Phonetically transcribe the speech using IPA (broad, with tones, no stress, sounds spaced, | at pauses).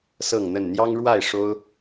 s ɤ˥˨ ŋ n̪ ə˥˨ n n̪ j ɑ˦ ŋ ɻ w a˥˨ ɪ̯ ʂ o˦ ʊ̯